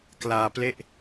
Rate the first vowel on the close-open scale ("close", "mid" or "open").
open